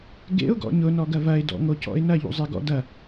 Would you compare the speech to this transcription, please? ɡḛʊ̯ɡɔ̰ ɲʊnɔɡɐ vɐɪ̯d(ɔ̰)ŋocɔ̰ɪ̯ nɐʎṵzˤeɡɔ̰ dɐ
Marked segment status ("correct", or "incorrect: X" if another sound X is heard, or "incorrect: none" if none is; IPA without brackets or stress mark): correct